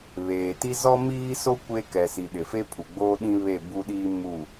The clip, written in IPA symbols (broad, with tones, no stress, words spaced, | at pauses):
βeː˨ti˦ zɔ˦miː˦so˦ kʷe˦ kɛ˨si˨ ɗɪ˨fe˦ pʰu˨ɡ͡boː˦ ɗĩ˦ βe˦˨bu˦ɗiː˦ mu˦˨